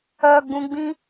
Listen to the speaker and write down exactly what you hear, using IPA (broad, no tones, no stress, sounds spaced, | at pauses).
œ ɡ͡b ũ ɡ͡b ĩ